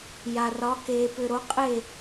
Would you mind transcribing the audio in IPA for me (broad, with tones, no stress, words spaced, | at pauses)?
ja˨rɒ˨˦ keː˨pʏ˨ɾo˨˦ qʼe˥˨